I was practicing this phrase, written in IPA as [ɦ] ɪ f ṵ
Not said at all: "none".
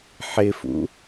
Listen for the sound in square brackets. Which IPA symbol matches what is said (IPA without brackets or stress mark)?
ħ